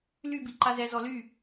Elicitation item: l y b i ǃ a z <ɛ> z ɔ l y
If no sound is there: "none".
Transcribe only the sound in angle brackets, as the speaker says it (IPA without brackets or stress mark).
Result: ɛ